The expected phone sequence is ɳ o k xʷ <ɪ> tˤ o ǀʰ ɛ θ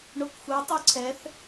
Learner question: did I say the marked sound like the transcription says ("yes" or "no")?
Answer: no